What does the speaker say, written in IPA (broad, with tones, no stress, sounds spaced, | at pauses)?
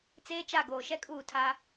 t͡s eː˦ t͡ʃ a˦˨ ɡ oː˨ ʃ ɛ˦ kʼ uː˦˨ tʰ aː˦